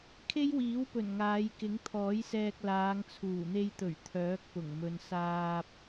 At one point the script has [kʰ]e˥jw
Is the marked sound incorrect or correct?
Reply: correct